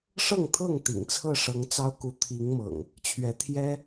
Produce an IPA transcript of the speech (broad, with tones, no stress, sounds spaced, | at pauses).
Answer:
ʂ ɤ˥˨ ŋ t̪ʰ ɤ˥˨ ŋ t̪ ḭ˨˩ ŋ t͡sʰ ɤ˥˨ ʂ ɤ˨˦ ŋ t͡s ɑ˦ ʊ̯ k u˨˦ t̪ʰ i˨˦ ŋ m ɤ̰˨˩ ŋ | t͡ɕʰ ɥ ɛ˨˦ t̪ʰ j ɛ˦